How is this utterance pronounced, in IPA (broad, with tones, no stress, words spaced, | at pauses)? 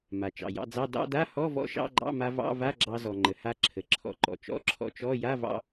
ma˩t͡ʃɑ̰˩jɑ̰˧d͡zɑ˧˥˧ dɑ̰˧˥˧da˧˥˧hɔ˧˥˧vɔ̰˧ ʃɑ̰˧˥˧ɡ͡ǃɑ̰˧˥˧ma˧ vɑ̰˧˥˧va˧˥˧ ɡ͡ǁɑ˧zɔ˩ŋ͡ǃə˩ha˧ ǁʰə˩ ǁʰɔ̰˧ǃɔ̰˩t͡ʃɔ̰˧˥˧ ǁʰɔ̰˧t͡ʃɔ˧˥˧ ja˧˥˧vɑ̰˧